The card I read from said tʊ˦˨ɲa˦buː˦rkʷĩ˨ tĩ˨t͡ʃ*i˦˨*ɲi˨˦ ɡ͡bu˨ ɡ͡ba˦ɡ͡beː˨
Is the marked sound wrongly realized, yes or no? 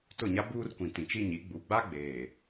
yes